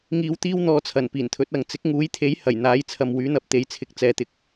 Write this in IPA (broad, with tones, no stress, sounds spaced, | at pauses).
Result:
ŋ iː˧ w t̪ iː˥ w n̪ ɔː˧ t͡sʰ ɐ˨˩ n p iː˨˩ n t̪ʰ ɵ˨˥ t̚ ɐ˨ ŋ t͡s ɪ˨˥ k̚ ŋ uː˨˥ j t̪ʰ e˨˥ j h ɐ˨˩ j n̪ aː˨˥ j t͡sʰ ɐ˨ m w yː˨˥ n̪ ɐ˨˥ p̚ t̪ e˨˧ j t͡sʰ ɪ˨˥ k̚ t͡s ɛː˨ t̪ ɪ˨˥ k̚